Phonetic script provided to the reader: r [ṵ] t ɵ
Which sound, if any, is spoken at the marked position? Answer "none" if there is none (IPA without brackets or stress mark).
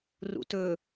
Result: ṵ